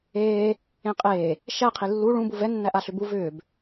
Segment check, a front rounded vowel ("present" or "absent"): present